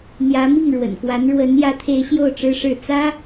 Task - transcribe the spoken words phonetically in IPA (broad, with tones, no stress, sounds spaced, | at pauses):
n̪ j ä˧˥ m i˥˩ ŋ ɻ w ə̰˨˩ n k w a˧˥ n ɻ w ə˧˥ n j ä˧˥ t̪ʰ e˧˥ ɪ̯ ɕ j o˥˩ ʊ̯ ʈ͡ʂ ɻ̩˥ ʂ ɻ̩˥˩ t͡s ä˥